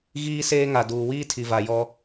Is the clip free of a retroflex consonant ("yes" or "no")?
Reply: yes